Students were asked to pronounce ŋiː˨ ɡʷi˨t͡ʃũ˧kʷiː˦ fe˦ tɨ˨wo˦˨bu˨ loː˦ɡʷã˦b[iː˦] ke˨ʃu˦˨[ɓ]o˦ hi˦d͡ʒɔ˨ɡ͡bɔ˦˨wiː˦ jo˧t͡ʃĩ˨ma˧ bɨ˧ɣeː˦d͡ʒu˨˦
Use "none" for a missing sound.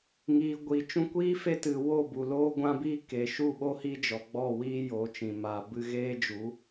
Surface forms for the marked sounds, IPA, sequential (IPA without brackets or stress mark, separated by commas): iː˦, ɓ